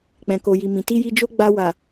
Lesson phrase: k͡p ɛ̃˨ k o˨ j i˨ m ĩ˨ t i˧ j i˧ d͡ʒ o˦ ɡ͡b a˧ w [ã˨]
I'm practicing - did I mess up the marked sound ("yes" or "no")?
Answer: yes